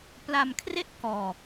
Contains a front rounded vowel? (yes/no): no